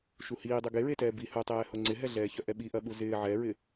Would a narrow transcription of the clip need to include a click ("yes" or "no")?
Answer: yes